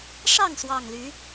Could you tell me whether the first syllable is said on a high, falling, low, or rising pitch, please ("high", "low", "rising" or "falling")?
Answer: falling